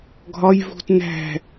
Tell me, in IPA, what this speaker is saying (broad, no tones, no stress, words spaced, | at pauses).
ɡʱɒj vṳt næ̤